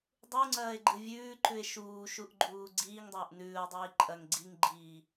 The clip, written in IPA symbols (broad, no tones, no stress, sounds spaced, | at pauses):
dˤ u ŋ͡ǀ ɐː e̯ ɡ͡ǃ ɨ vʲ ʉː ǃ ʉ e̯ ʃ uː ʃ u ʔ ɡ͡ǃ uː ɡ͡ǀ iː ŋ dˤ ɐː ʔ n ʉː o̯ dˤ iː ǃʼ ɐ ŋ ɡ͡ǀ i ŋ ɡ͡ǃ iː